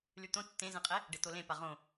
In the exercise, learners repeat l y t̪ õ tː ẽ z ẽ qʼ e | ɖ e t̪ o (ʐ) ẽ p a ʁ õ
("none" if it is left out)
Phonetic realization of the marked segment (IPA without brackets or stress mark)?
l